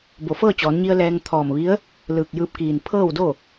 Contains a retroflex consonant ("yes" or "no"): no